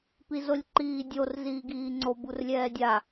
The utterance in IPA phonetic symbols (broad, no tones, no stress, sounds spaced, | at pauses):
p i z o lʲ ǃ iː dʲ o r z iː ɡ iː ŋ͡ǀ o b u r lʲ ɛː dʲ a